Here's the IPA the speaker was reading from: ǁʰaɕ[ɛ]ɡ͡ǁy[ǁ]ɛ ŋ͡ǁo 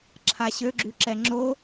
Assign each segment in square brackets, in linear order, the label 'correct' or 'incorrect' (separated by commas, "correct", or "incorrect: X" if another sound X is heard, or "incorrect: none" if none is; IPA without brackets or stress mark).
incorrect: ø, correct